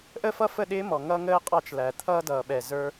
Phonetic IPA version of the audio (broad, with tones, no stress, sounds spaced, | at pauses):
ʔ ə˦ f ʌ˦ f ə˦˨ ɗ ɪː˦ m ɔ˨ ŋ ʌ˦ ŋ əː˦ qʼ ɑ˦ t͡ʃ l æ˨ t̪ʰ ʌː˦ d ʌː˨ ɓ ɛ˨ z ə˞˧